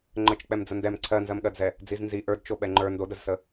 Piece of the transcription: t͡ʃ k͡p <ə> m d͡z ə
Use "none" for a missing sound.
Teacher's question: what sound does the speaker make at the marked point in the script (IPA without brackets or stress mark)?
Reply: ɛ